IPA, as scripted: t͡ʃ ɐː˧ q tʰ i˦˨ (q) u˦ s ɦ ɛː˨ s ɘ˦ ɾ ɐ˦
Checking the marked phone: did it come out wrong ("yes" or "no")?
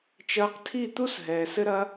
yes